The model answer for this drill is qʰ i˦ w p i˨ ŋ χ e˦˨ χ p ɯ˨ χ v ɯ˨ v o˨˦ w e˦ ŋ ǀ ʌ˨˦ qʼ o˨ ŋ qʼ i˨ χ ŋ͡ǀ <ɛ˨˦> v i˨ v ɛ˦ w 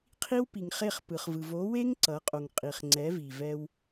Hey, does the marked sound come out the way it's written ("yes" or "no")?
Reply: yes